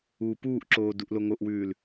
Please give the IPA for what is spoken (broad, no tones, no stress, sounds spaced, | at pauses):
uː p uː ʔ ǁ oː d u ʔ l o ŋ o ʔ w ʉː l